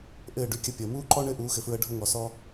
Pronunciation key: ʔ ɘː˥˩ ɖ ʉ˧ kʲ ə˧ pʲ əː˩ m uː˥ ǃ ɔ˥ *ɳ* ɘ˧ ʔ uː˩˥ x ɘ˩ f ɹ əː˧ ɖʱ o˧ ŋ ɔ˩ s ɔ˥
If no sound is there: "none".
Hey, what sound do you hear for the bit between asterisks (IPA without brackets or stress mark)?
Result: ɳ